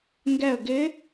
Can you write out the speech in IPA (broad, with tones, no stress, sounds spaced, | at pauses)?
ŋ ɡ ɛ˧˩ ə̯ ɡ ɪ˧˥